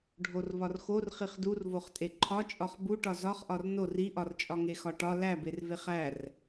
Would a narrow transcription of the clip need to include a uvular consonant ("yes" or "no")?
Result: yes